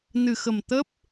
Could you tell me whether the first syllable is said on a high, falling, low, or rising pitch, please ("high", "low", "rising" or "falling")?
low